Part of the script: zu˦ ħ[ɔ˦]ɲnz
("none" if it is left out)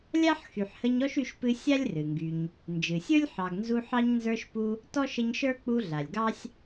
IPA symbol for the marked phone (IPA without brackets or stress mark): ɑ˦